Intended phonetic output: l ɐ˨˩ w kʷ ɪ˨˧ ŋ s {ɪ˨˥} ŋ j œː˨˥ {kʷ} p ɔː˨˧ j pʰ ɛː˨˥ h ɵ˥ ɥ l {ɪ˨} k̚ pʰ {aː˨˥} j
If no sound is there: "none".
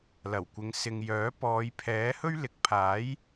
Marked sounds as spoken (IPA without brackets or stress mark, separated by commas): ɪ˧, none, ɪ˨, aː˨˥